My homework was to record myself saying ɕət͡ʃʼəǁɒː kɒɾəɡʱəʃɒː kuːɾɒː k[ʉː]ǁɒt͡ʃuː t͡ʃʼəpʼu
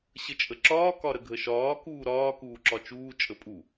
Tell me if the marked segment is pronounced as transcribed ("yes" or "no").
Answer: no